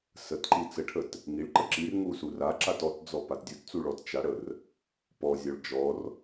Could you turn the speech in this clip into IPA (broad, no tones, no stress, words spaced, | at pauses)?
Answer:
sətǃi t͡səʈʰət | ŋiɭǃə ǁirŋu suraǁat ɔtd͡zɔ patdʲutt͡su ɭɔtt͡ʃaɽər | pɔzʲɔɭ d͡ʒɔr